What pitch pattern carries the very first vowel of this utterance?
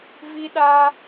high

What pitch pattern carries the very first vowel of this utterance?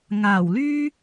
low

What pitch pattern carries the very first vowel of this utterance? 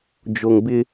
low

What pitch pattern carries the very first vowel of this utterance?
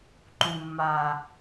low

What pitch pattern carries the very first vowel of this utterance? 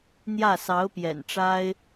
falling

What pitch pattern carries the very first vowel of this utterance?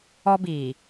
high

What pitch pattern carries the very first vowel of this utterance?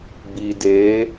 low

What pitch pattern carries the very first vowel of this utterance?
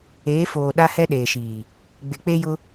rising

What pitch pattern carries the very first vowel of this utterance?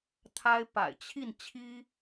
high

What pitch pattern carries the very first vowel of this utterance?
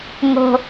high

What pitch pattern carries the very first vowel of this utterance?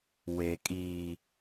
low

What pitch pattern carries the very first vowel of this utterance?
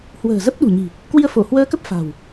low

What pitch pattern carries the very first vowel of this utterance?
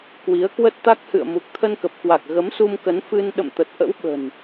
rising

